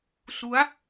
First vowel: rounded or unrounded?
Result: rounded